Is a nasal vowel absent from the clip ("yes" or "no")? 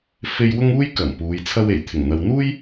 yes